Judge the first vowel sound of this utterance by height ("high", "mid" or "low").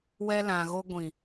mid